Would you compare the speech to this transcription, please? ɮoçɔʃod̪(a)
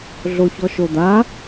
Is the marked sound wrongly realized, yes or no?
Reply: no